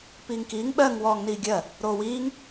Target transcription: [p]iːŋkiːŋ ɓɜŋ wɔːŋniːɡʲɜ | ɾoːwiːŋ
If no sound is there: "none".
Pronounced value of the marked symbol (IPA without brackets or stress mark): p